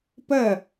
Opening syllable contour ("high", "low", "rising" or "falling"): falling